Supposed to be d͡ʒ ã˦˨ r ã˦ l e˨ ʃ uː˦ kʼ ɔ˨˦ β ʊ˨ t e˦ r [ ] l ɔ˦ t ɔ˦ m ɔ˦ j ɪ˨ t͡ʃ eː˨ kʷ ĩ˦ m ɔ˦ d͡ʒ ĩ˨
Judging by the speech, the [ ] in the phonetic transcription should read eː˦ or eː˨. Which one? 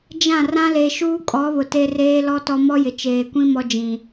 eː˦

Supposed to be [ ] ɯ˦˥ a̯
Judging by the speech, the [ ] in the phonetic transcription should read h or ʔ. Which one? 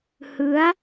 h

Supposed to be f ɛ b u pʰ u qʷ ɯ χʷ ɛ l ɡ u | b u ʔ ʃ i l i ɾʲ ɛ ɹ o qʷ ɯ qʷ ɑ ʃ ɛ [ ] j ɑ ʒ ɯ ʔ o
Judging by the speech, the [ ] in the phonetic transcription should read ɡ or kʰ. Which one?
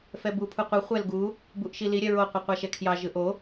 kʰ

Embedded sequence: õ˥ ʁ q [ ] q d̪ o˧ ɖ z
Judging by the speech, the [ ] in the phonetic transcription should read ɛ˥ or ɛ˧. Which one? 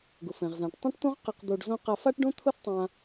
ɛ˧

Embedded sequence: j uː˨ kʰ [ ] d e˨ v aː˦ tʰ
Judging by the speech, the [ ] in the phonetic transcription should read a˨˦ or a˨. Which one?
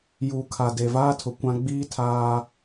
a˨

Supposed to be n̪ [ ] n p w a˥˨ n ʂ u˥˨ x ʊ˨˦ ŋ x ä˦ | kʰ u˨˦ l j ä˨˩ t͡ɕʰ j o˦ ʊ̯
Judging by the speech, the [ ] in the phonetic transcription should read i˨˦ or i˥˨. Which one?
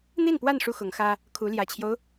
i˥˨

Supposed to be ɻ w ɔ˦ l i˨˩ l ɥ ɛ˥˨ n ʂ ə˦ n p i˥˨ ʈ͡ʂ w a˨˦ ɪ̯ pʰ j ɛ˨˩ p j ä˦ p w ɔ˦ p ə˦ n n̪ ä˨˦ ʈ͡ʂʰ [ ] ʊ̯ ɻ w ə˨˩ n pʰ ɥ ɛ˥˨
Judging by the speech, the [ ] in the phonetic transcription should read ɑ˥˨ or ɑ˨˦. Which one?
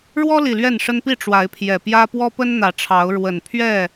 ɑ˨˦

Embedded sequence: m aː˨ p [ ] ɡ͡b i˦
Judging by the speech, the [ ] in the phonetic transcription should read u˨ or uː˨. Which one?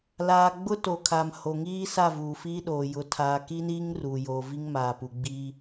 u˨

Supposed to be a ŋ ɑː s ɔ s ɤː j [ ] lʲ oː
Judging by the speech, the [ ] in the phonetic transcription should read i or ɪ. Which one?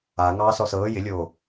ɪ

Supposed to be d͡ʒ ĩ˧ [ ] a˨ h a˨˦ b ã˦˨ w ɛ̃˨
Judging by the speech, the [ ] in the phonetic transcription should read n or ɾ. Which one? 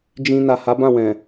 n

